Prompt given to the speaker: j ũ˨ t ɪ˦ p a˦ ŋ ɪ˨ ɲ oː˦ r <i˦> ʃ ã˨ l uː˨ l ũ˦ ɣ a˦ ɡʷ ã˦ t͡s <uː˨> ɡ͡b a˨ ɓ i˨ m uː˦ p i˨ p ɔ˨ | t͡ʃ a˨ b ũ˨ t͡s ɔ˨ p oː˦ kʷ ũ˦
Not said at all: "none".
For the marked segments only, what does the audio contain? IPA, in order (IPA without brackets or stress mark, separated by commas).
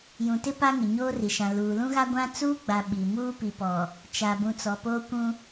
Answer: i˨, uː˦